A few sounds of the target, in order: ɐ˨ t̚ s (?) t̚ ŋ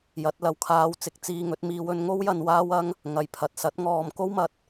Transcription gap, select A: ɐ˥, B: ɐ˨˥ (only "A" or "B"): B